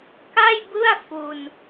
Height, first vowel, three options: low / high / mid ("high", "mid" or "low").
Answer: low